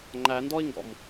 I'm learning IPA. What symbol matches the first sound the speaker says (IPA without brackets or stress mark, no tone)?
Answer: ŋ͡ǃ